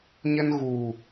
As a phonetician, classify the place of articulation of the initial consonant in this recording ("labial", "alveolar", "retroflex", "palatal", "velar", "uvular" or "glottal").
palatal